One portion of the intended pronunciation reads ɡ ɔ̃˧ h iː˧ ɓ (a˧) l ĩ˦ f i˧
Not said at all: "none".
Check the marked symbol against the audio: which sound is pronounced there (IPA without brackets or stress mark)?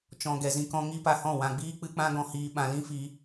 ã˧